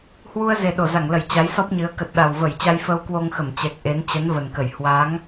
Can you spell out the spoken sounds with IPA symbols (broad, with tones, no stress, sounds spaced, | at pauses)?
h w u˧ ə̯ z e˨˩ ɗ o˧˩ z a˧˩ ŋ l ə˧˩ j t͡ɕ a˨˦ j s ɔ˦˥ p̚ ɲ ɨ˨˦ ə̯ k ə˨˩ t̚ ɗ a˨˩ w v ə˧˩ j t͡ɕ a˧ j f əː˧ w k w o˧ ŋ x ə˧˩ m t͡ɕ ɛ˨˩ k̚ ʔ e˨˦ n t͡ɕ ə˨˦ n v ə˨˩ n k ə˧˩ j h w a˨˦ ŋ